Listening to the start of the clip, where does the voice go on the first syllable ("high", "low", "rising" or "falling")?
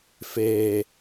low